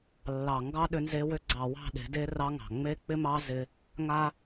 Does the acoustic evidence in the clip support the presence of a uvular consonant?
no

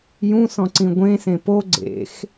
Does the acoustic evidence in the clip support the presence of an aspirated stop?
no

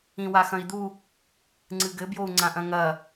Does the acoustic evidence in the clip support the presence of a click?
yes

